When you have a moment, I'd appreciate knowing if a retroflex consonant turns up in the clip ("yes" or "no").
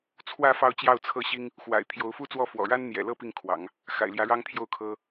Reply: yes